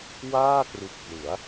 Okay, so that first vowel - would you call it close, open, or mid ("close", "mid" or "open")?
open